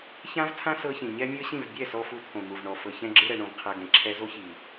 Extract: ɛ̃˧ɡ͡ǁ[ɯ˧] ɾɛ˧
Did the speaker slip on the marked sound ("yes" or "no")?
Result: no